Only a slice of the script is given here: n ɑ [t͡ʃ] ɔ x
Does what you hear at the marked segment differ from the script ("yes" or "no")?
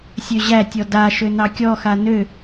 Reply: yes